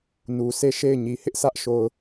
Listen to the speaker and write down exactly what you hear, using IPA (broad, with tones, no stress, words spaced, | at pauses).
nu˨ se˦˨ʃe˦˨ɪ̯ɲi˨ hɪ˦ʔsä˦ʔʃo˨ʊ̯